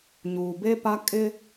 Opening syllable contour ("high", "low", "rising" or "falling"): low